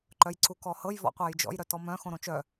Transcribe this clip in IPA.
ǃ œ j ǀ u k ɔ h ɤ j v ɔ̰ qʷ æ j d͡ʒ ɔ̰ j ɾ œ t ɔ m œ̃ x õ ɾ õ t͡ʃ œ

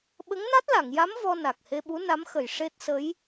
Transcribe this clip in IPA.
ɓ ə˧˥ ŋ n a˦˥ t̚ l a˨˩˨ ŋ j a˧˥ m v ɔ˧ n a˨˩ k̚ h e˧ ɓ u˧˥ n a˧˥ m x ə˨˩ j ʂ e˦˥ t̚ s ə˧˥ j

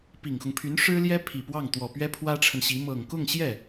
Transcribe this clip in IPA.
p i˨˩ ŋ x ʊ˦ ŋ pʰ y˧˥ n ʂ ɻ̩˥ l j ɛ˥ pʰ i˨˩ p w ɑ˥˩ ŋ t̪ w ɔ˨˩ p ɥ ɛ˥ pʰ w ä˥ ʈ͡ʂʰ ə˨ n ɕ i˧˥ m ɤ˨˩ ŋ k ʊ˥˧ ŋ ɕ j ɛ˥˩

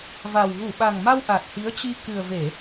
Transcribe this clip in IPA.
v a˨˩ w ɣ u˧˩ ɓ a˨˩ ŋ m a˧ w ʔ a˨˩ t̚ h i˨˦ ə̯ t͡ɕ i˧ k ɨ˨˩ ə̯ v e˧˩˨

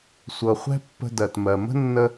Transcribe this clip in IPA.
sʷ ɤ˩ χʷ ɛ̤˥ pː ə̤˧ d ɜ˩ t m ɜ˩ m ə̤˥ nː ə˧

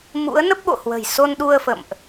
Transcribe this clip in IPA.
m ṵ˧˥ ə̯ n ə˦˥ p̚ ɓ o̰˧˨ h w ə̤˨˩ j s o˧ n ɗ u˧ ə̯ f ə̰˧˨ m ʔ

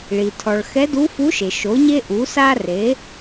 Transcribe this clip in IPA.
ɭ i˩ tʰ ɔ˩ ɭ x ɛ˧˥ d u˧˥ f u˧˥ ʃ e˩ ʃ o˩˧ ɲ e˧ ʔ u˩˧ s a˧ r e˩˧

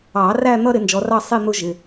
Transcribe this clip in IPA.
ɑ˨˩˦ r æ˥˧ n̪ ʌ˥˧ ɾ ɪ˨˦ n d͡ʒ ɔ˨˦ r ɑ˥˧ sˤ i˥˧ n̪ ʊ˦˥ ʒ ɪ˩˧˩

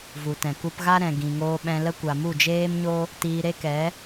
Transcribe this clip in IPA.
v u˨ t ɛ̃˨ k u˧ p ɣ a˦ ɾ ɛ̃˨ ɡ ĩ˨ ŋ oː˧ ɓ ɛ̃˧ l ə˦ kʷ a˨ m u˦˨ d͡ʒ eː˦ m ɲ o˦ | t iː˧ ɾ e˦ k ɛ˨˦

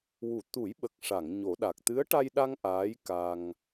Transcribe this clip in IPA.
w u˨˩˨ t̪ u˨˩˦ j ɓ ə˨˩ k̚ ʂ a˨˩˨ ŋ ɲ o˨˩˦ ɗ a˨˩ k̚ t̪ ɨ˧˥ ə̯ ʈ a˧ j ɗ a˧ ŋ ʔ aː˧˥ j k a˧ ŋ

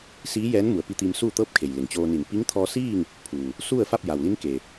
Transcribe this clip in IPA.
s iː˧˥ j ɛː˧˥ n m u˩˧ ə̯ p i˧ t̪ iː˧ m s uː˥˨ t̪ ɤː˥˨ p̚ kʰ e˩ j l e˩ ŋ t͡ɕ oː˧ n i˧˩ n p i˧˥ ŋ t̪ʰ ɔː˧ s iː˥˨ ŋ | pʰ uː˩ | s u˥˨ ə̯ f a˥˨ p̚ j a˩ w l i˧˥ n k e˩

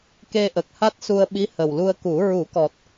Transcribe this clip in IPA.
k e˧ ʔ ə˨˩ k̚ h a˦˥ t̚ s u˧ ə̯ ɓ i˧˥ h ə˨˩ w l u˧ ə̯ k u˨˩˦ ɹ u˨˩˦ k ɔ˨˩ t̚

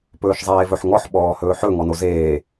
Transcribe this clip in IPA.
p ɵː ʃ zˤ eː v ɵ ħ ŋ ɔ ħ ɓ ɔː h ɵː ħ ɵ ŋ ɔ n o z eː

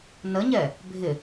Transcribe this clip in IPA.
n ə ɲ ɛ | bʱ ɪ

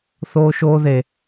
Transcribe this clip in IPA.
θ oː˥ ʃ oː˥ ð e˧

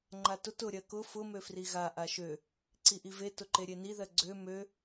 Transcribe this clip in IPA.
ŋ͡ǃ a t ʊ t ʊ ɾʲ ɜ k ʊ f ʊ m ø f r i ɣ a ʔ a ʃ ø | ǀ i ʔ i v e t ʊ ǃ e ɾʲ e n i ð ɜ ɡ͡ǀ ø m ø

